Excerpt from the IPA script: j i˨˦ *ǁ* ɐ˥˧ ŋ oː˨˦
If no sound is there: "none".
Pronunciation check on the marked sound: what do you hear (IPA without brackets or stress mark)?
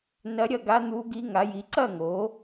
ǀ